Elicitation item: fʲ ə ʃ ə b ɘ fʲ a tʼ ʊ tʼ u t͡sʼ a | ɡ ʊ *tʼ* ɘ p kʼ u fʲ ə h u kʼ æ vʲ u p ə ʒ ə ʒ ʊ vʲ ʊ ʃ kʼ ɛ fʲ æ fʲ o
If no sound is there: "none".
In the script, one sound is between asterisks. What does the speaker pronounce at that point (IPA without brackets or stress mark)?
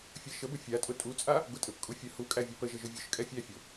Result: tʼ